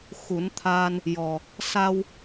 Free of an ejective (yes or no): yes